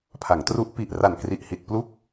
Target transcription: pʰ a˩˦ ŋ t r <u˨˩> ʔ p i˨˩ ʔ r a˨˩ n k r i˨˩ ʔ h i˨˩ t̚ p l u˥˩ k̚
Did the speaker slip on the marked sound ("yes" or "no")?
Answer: yes